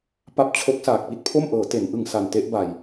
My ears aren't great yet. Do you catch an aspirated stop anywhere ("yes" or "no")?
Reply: yes